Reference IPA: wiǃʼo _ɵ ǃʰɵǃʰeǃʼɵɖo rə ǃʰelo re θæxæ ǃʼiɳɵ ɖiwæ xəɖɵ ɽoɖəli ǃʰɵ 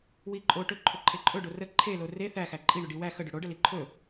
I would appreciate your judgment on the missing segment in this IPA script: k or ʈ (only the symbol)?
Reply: ʈ